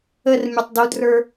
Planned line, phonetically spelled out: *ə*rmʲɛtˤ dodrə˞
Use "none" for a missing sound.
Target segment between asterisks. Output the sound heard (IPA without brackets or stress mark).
ə